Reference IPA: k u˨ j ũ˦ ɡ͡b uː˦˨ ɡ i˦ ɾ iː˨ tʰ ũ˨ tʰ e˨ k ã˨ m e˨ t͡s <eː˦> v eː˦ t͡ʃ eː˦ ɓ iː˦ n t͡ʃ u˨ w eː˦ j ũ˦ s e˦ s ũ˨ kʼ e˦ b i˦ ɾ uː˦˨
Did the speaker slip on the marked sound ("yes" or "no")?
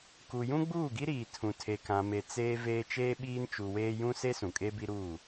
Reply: no